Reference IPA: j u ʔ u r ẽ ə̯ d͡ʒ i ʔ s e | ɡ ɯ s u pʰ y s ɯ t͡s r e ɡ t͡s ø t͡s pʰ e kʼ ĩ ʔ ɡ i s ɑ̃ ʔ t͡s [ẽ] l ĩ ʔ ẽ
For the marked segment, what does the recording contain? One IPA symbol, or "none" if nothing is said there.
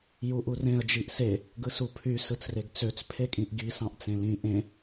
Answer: ẽ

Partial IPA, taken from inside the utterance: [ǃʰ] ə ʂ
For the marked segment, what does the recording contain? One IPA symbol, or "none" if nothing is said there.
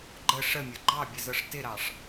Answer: ɡ͡ǃ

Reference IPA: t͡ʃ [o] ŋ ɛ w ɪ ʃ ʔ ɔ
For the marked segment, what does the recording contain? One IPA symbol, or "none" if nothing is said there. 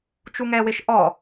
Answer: u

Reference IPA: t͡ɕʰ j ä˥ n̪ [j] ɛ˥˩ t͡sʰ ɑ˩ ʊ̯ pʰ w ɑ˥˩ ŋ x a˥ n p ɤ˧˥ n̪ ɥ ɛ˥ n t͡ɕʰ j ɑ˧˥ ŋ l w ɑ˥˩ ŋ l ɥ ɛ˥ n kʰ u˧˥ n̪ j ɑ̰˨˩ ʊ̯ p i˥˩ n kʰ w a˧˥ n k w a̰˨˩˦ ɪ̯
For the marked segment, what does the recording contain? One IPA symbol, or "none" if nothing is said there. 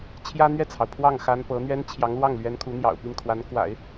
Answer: ɥ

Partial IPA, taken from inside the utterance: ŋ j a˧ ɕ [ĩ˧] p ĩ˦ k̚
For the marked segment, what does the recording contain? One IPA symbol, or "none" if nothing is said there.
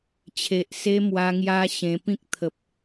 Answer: ẽ˧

